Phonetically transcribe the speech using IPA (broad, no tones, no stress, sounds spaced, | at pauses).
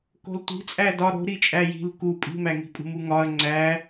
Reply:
k o̤ l tʷ i̤ t͡sʼ æ d ɒ ɾ o̤ ɾ i t͡ʃʼ æ j i̤ l k u pʼ i̤ m æ ŋ i̤ pʼ ṳ m u ŋ ɒ ɐ̯ ŋ͡ǀ æ